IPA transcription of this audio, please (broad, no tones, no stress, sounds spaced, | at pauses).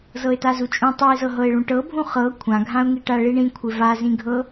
z ɤ ɪ̯ t a z u t͡ʃʼ ũ tˤ u ɪ̯ z ɤ ɦ ɤ ɪ̯ ɭ ũ ʈ ɤ bʱ ũ χ ɤ kʷʰ ã ɡʱ ã ʊ̯ ŋ i ʈ a ɭ i ɳ ĩ kʷʰ ɪ v a z ĩ ɡʱ ɤ